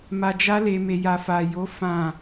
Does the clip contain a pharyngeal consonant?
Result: no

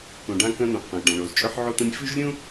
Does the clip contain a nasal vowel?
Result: yes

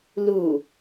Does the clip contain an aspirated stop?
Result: no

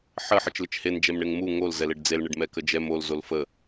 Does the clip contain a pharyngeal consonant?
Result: yes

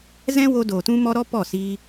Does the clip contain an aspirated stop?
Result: no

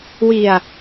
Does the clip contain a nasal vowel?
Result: no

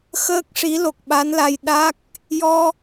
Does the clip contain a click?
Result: no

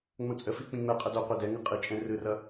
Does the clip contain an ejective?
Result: yes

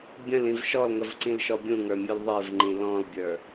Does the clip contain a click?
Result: yes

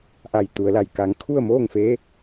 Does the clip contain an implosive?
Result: no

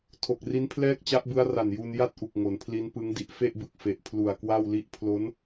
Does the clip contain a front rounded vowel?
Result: no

